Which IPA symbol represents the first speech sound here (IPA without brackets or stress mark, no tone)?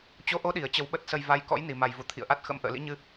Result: t͡ɕ